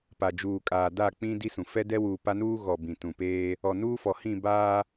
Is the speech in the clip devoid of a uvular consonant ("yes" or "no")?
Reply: yes